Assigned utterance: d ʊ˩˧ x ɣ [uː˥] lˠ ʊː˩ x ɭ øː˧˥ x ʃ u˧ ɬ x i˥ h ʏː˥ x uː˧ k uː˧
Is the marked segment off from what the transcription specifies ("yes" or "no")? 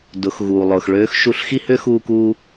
yes